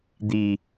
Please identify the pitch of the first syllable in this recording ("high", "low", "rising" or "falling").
low